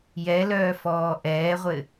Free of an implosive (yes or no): yes